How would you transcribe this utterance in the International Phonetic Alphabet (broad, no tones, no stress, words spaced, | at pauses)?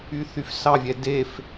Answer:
yθyfsɑvʲɛ def